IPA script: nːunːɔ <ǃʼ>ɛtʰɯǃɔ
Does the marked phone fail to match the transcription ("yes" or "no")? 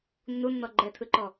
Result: yes